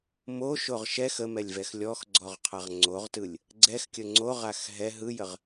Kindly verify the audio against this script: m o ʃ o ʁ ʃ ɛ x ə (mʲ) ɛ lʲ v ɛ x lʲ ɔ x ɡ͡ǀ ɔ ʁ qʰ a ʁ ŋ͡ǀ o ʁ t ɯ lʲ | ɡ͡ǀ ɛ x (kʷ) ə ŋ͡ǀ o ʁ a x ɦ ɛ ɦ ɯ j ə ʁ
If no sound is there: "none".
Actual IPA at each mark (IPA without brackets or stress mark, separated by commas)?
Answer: m, kʲ